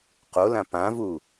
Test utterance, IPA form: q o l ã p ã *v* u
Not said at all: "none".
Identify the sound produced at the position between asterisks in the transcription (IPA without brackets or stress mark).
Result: v